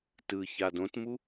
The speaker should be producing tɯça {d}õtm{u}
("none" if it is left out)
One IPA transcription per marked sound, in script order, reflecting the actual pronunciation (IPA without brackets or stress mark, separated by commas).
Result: d, u